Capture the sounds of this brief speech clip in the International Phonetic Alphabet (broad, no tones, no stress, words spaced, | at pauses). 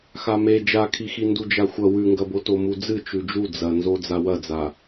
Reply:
xame d͡ʒakʰixi ndud͡ʒaxʷɐ wʉŋɡɐboto mud͡zɨ t͡ʃʉd͡ʒu d͡zɐnzo d͡zawɐd͡za